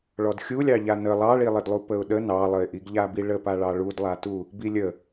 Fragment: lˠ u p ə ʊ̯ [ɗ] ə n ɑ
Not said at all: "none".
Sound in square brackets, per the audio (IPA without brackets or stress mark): ɗ